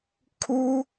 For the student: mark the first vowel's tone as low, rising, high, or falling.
high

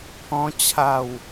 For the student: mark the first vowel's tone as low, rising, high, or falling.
high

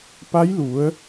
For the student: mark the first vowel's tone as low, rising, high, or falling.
rising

